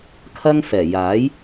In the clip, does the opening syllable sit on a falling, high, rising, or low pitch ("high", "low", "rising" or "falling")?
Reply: high